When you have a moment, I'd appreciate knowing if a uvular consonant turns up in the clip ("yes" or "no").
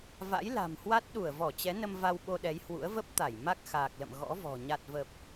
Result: no